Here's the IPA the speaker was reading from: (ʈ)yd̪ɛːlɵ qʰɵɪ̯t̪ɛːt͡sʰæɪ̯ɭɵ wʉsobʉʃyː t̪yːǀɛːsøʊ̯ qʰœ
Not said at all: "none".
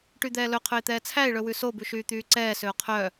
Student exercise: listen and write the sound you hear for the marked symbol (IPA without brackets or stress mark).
ʈ